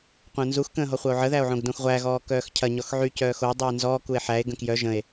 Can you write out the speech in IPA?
qʷ ə̃ː n z u x k ə̃ː ɦ ɔ χʷ ɐ o̯ ʕ ə ð æ o̯ ʕ õ ɡ d õ x ʁʷ æ ɣ ɔː k œː x cʰ ɐ ɲ ɔ x ʕ y c œː x o dˤ u e̯ n z ɔ k u e̯ ħ æ e̯ ɡ ə̃ k j œ ʒ ə̃ e̯

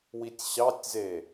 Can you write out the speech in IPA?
w i tʲ ɕ ɑ tʲ z e

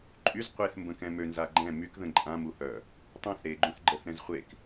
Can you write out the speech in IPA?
ǃʼ y z qʷ e θ m b ə̃ k ɛ̃ m ø n z a ɡ͡ǃ ɛ̃ m y k ð ə̃ ǃʼ ã m u h œ | tˤ ũ θ ɾ e ɡ͡ǃ ũ θ ɡ͡ǃ ə θ ɾ ɛ̃ z χʷ e k

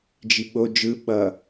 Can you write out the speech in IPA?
d͡ʒ i ɓ o d͡ʒ ɯ ɓ ʌ

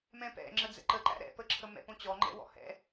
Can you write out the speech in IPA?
m ɛ̃ p ɛ̰ ŋ͡ǁ ə d͡z ɛ̰ ǃ ə ǃ æ̰ ɾ ɛ̰ p ə ǁʰ ə m ɛ̰ p õ t͡ɕ ɔ ŋ͡ǃ ɛ̰ w ɔ̰ h ɛ̰

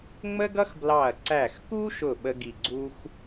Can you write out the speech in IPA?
ŋ͡m ə˥ ɡ ʌ˥ x b l ɑ˧˩ ɐ̯ ǀ æ˧˩ x k u˥ ʃ ʊ˧˩ ɓ ə˥ ɡ i˧˩ ɡ͡ǀ u˥ x

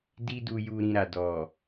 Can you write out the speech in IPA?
d i˦ d u˧ j u˧ ɾ ĩ˧ ɾ a˨ d ɔ˨

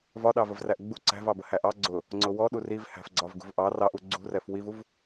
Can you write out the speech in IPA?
v ɒ ɗ ɑ v ə v r æ ʔ ɡ͡b u ǀ æ̤ v ɑ b ə h æ ʔ ɑ ɡ͡ǀ ʊ | ŋ͡ǀ ʊ w ɔ ɗ u r i v h æ̤ f ɡ͡ǀ ɒ v ɡ ṳ v ʔ ɑ r ɑ ʔ u ɡ͡ǀ ṳ r ɛ f w i v u v

